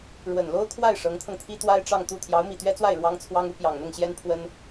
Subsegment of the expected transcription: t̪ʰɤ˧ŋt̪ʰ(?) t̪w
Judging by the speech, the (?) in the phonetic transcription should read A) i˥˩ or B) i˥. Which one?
B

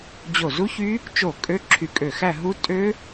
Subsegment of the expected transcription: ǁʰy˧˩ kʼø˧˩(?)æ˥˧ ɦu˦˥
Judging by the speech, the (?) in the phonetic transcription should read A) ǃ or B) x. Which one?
B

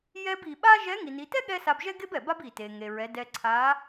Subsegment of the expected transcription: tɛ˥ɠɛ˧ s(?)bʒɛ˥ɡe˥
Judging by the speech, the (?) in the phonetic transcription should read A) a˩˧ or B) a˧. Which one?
B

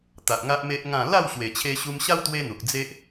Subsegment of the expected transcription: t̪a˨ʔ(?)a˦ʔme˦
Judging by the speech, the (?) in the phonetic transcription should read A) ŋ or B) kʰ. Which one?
A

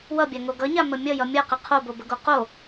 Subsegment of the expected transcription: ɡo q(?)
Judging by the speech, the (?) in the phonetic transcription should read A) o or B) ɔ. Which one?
A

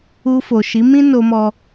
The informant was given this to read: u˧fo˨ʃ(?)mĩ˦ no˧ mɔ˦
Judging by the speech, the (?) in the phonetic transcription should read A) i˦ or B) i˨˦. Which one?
B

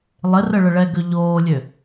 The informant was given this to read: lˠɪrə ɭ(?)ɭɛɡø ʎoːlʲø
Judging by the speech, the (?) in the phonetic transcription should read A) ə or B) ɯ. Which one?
A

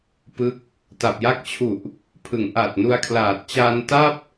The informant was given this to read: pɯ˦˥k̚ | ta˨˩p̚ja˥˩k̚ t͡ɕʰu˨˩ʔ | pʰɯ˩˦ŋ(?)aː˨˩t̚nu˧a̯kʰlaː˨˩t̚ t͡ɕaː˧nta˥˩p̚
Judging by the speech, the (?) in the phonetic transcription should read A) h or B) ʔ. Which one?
B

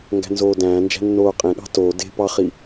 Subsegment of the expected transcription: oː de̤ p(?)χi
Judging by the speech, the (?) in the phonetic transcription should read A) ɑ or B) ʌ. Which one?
A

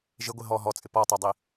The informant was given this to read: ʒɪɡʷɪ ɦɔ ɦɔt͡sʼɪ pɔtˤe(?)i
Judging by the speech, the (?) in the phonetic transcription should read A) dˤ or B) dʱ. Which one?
A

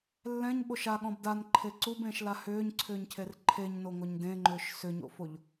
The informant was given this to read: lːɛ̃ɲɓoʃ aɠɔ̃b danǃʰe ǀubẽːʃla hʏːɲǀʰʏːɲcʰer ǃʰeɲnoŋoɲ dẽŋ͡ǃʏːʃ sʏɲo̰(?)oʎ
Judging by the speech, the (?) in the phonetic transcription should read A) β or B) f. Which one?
B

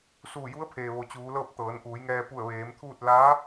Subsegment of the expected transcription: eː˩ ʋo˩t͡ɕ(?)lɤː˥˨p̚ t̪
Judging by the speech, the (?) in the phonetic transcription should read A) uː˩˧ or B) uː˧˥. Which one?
A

